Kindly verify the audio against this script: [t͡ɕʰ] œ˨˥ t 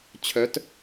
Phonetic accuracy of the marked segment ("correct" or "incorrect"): correct